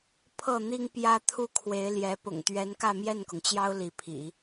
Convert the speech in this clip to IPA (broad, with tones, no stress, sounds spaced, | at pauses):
pʰ ɤ˥˩ n̪ i˥ ŋ p j ä˥ t̪ʰ u˥˩ kʰ w e˧˥ ɪ̯ l j ɛ˧˥ p ʊ̰˨˩ ŋ t̪ ɥ ɛ˧˥ n k ä˥˧ m j ɛ˥˩ n k ʊ˩ ŋ t͡ɕ j ɑ˥ ʊ̯ l i˧˥ pʰ ḭ˨˩˦